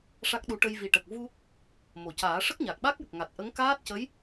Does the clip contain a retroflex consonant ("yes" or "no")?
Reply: yes